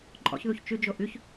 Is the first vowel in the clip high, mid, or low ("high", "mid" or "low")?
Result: mid